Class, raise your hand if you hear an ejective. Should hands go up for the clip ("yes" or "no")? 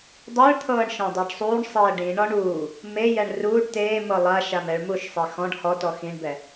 no